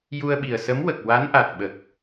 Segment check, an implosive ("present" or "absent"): present